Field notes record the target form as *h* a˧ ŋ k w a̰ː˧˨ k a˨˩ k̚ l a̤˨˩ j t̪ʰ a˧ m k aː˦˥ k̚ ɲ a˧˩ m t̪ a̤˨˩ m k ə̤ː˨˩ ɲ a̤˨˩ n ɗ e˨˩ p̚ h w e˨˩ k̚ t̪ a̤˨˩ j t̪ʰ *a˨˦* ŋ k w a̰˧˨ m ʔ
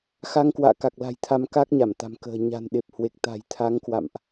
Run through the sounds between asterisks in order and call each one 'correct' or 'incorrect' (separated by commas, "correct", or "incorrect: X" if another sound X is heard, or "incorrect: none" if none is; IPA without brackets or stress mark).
incorrect: x, correct